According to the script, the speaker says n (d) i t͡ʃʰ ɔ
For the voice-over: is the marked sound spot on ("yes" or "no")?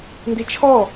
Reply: yes